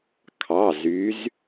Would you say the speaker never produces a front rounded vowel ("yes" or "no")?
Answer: no